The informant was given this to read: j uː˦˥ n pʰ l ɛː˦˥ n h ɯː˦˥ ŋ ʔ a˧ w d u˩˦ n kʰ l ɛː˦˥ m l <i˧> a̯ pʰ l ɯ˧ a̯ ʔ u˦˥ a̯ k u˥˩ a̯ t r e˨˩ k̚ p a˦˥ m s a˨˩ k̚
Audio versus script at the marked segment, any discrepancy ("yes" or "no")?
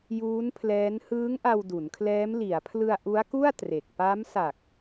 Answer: yes